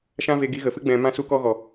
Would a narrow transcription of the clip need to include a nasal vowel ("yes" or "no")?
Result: yes